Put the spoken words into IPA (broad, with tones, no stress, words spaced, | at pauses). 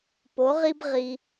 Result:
po˧˥ʁi˥b ʁi˧